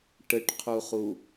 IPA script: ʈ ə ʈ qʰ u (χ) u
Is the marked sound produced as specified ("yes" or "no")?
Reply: yes